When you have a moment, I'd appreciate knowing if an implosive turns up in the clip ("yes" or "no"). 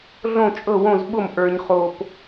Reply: yes